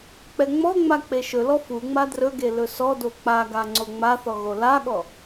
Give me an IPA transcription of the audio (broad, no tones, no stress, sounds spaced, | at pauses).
k͡p ɛ ŋ͡m ɔ ŋ͡m a k͡p e ʃ ɵ l ɔ f u ŋ͡m a d r ɵ ɡ e l ɵ s ɔ d o k͡p a ɡ a ŋ͡ǀ o ŋ͡m a θ ɔ ɣ o l a ɠ ɔ